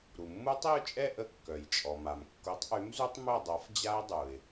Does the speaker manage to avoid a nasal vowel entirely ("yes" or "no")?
yes